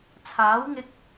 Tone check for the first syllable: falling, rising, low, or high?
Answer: rising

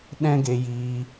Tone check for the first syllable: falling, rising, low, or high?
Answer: high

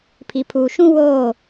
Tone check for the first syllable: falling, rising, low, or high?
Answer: low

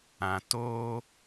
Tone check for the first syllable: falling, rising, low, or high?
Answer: low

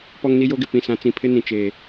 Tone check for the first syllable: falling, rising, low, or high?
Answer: high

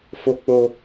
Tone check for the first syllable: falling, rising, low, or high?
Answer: high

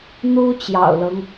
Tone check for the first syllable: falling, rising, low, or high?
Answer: high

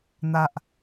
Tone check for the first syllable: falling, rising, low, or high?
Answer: low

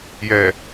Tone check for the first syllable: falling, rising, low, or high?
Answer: low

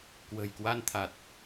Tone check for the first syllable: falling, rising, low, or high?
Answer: low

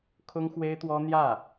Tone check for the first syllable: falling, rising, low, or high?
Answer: high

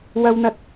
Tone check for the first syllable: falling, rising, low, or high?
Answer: high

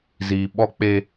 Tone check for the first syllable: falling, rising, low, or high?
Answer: low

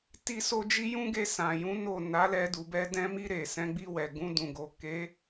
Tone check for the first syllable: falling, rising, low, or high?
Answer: high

